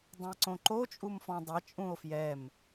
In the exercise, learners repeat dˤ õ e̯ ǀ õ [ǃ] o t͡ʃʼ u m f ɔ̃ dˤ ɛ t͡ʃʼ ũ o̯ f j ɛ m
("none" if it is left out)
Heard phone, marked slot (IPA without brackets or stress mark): ǃ